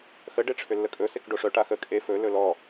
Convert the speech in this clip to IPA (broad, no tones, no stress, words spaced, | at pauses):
xə ɖeʈ͡ʂʰʏlːəkʼɵ sekɖoʂœ ʈaxə kʼe fɵ lɵlɔ